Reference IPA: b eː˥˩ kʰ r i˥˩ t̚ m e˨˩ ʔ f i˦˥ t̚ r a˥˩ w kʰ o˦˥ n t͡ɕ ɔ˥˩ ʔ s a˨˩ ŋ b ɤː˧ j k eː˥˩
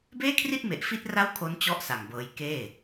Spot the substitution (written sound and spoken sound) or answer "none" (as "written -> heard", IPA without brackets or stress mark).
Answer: none